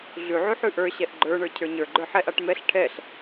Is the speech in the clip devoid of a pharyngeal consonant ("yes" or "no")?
no